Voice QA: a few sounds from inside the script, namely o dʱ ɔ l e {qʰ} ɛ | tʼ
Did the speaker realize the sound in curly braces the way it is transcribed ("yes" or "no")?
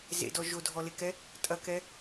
no